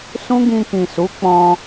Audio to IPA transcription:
s ũ˦ ɡ ĩ˧ k ĩ˨ s u˨˦ k͡p ɔ̃˧

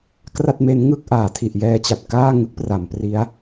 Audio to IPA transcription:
k r a˥˩ t̚ m e˦˥ n ŋ ɯ˥˩ k̚ ʔ aː˩˦ tʰ i˨˩ ʔ j ɛː˧ t͡ɕ a˨˩ t̚ k aː˥˩ ŋ ɯ˦˥ k̚ p r a˩˦ m p r i˦˥ a̯

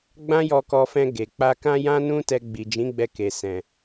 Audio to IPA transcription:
ɡ͡b ã˦ j ɔ˧ k ɔ˧ f ɛ̃˧ ɡ e˨ k͡p a˧ k ã˦ j ã˦ n ũ˦ t ɛ˧ ɡ͡b i˨ d͡ʒ ĩ˨˦ ɡ͡b ɛ˧ k e˨ s ɛ̃˨

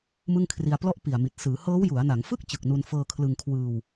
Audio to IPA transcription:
m ɯ˥˩ ŋ kʰ r i˧ a̯ p l ɔ˥˩ ʔ p i˨˩ a̯ m i˨˩ t̚ s ɯː˩˦ h ɤː˦˥ w j u˩˦ a̯ n a˩˦ ŋ f ɯ˥˩ k̚ t͡ɕ ɯ˨˩ k̚ n u˧ n f ɤː˧ kʰ l ɯ˧ ŋ kʰ w ɯː˧ w

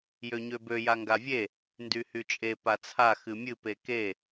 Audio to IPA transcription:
j ø ɲ ø b ø j a ŋ ɡ a vʲ e | n d y h y t͡ʃʼ e p a t͡sʰ a x ɨ mʲ ɨ p e k e

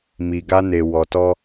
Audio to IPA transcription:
m i˨ ɡ a˧ n e˨ w ɔ˨ t ɔ˧

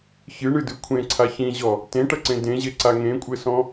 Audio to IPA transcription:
ç ɨ ɳ ɨ d ɨ kʷʰ ẽ ǀʰ a ç ĩ ʑ ɔ | t ẽ ʈ ɐ ǀ ẽ d ẽ ʑ e ǀ a ŋ ẽ kʷʼ ɘ s ɔ̃

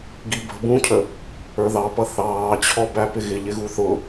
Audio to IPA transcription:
ɡ i b ə̤ b ũ cʰ ə | ə˞ ð ɑ p ʌ θ ɑː t͡ɕʰ ɔ b æ p ɪ ɣ ɪ ʎ ɪ ɣ u θ ʊ

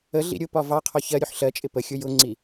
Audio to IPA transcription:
ə ɮ ḭ ɾʲ ʊ p ɒ v ɑ qʰ ɔ ç ɜ ɾʲ u ħ ɬ ɜ t͡ʃʼ ɪ p ə xʲ ʊ j ʊ ŋ͡ǀ i

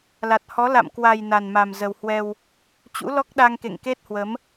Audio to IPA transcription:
l a˨˩ t̚ h ɔ˨˦ l a̰˧˨ m k w a˨˩ j n a˨˩ n m a˨˩ m z ə˨˩ w h w ɛ˧ w | t͡ɕ ṵ˧˥ l ɔ˦˥ k̚ ɗ a˧ ŋ k ḛ˧˨ ŋ k e˦˥ t̚ h w ə˨˦ m

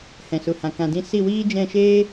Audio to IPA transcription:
h ɛ̃˨ s u˨ h ã˨ k ã˨ d ĩ˧ s i˦˨ w iː˦ d͡ʒ ɛ̃˦˨ ʃ eː˦

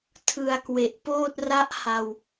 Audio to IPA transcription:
tʰ ɯ˨˩ a̯ k w e˨˩ ʔ p oː˥˩ t̚ r a˦˥ ʔ h a˧ w

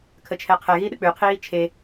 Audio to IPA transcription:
kʰ ə t͡ʃʰ ɛ qʰ ɛ ɣ i ɗ ə k͡p ʉ qʰ iː t͡ʃʰ e

